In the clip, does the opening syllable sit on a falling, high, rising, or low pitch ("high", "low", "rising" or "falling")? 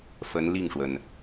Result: rising